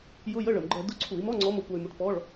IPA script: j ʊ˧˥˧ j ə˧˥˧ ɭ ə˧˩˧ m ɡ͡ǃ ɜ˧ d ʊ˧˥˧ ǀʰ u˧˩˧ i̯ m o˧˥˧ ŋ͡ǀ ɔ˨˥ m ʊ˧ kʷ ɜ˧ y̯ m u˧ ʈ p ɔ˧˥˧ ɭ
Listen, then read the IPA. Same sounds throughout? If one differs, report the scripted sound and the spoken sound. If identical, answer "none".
o˧˥˧ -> ɔ˧˥˧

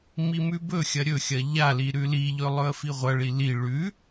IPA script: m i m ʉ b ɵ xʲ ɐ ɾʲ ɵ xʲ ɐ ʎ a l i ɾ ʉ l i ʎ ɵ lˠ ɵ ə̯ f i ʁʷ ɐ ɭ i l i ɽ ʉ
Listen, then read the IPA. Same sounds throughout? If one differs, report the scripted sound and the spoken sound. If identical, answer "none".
ɽ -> ɭ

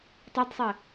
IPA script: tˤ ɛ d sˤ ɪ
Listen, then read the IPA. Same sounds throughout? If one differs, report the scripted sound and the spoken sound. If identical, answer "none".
none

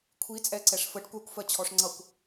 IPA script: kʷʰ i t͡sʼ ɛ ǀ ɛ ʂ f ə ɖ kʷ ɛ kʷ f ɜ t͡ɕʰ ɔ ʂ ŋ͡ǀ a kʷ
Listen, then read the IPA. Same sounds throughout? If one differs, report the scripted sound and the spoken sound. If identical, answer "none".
a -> ʌ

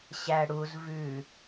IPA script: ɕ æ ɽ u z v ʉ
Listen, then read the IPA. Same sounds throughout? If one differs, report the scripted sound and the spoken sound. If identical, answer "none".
none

